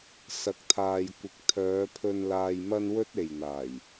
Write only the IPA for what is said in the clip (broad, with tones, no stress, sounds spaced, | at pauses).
s ɐ˨˥ k̚ t̪ʰ aː˨ j kʷ ɪ˨ k̚ t̪ʰ œː˨˧ pʰ ɵ˧ n l aː˧ j m ɐ˥ n w ɵ˥ t̚ e˨ j n̪ aː˨˩ j